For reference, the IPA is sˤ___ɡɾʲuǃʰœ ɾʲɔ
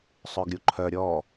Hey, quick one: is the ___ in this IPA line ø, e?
ø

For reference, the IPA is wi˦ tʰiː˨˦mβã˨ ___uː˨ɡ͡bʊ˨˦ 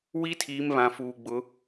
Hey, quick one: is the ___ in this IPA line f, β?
f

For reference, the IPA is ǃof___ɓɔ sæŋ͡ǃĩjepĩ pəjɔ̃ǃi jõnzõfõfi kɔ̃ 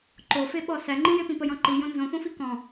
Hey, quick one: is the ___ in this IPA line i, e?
e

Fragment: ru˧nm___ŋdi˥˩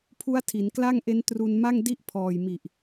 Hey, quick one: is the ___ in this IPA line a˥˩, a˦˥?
a˥˩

